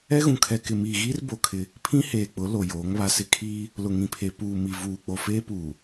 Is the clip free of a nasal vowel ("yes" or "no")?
no